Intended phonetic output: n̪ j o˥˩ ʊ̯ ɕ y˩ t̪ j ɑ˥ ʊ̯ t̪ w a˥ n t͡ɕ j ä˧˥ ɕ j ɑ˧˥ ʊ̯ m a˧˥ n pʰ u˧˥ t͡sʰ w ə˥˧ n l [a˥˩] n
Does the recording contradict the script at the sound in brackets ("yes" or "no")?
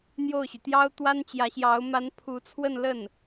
yes